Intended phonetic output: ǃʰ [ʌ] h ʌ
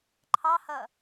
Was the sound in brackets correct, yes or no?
no